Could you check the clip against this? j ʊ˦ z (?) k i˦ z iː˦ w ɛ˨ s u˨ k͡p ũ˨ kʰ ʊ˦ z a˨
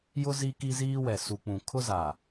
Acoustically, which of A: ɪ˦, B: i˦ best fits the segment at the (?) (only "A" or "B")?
B